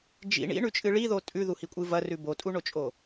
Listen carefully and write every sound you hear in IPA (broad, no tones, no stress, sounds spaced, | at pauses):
d͡ʒ ḭ ɳ ḭ ɳ ʉ t͡ʃʼ ɨ ɭ i ð o tʼ ʉ ð u h i kʷʼ ɨ v ɐ r ʉ b o tʼ u ɳ o t͡ʃʼ o